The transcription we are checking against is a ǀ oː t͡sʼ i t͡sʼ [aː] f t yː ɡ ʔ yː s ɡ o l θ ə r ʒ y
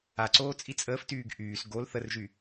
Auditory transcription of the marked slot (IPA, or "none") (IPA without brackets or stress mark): əː